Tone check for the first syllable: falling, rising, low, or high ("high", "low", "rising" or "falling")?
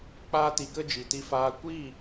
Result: high